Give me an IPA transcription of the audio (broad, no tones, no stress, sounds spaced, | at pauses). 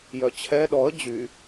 j œ t͡ɕʰ ɛ ɗ ɔ ə̯ d͡ʑ y